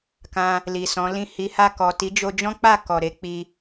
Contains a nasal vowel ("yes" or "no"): yes